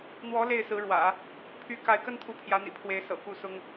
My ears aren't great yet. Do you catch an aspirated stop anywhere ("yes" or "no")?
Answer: yes